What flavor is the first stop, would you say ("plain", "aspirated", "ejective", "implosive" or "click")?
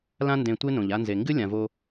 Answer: plain